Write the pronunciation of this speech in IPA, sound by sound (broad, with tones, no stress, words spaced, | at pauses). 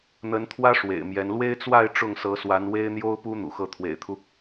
n̪ə˧˥nt̪ʰwä˥ ʂwḛ˨˩ɪ̯mjɛ˧˥n lwe˥ɪ̯t͡swa˥˧ɪ̯ ʈ͡ʂʊ˥˩ŋsɤ˧˥swa˧˥n we˥ɪ̯n̪jo˥ʊ̯pu˥ n̪ṵ˨˩xɤ˥˩ t̪ʰwḛ˨˩ɪ̯t̪ʰu˦